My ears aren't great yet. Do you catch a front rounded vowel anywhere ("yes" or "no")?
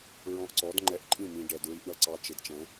no